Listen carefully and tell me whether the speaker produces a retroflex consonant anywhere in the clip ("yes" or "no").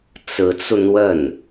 no